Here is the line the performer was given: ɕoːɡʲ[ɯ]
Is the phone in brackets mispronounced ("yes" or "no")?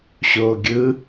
no